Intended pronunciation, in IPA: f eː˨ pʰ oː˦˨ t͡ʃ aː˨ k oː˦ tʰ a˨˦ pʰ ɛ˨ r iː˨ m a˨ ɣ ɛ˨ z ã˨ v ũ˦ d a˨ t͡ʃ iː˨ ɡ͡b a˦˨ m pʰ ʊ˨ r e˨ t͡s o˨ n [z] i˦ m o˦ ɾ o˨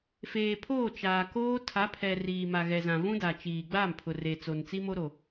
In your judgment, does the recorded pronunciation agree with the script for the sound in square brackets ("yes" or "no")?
no